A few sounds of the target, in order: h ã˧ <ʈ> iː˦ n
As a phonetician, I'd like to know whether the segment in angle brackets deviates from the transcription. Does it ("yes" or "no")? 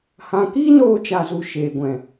yes